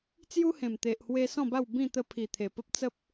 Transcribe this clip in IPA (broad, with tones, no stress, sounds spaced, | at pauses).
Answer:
t͡s j u˦ h ẽ˨˩ m t̪ e˨ ʔ h w e˧ s ɔ̃˥˧ b a˥˧ w b ĩ˥˧ t̪ ə˧ pʰ i˨˩ t̪ʰ e˨˩ p ə˦ p̚ t͡s ə˦ p̚